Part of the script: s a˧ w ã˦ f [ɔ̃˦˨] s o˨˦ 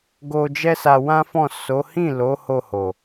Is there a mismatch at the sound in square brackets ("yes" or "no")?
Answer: no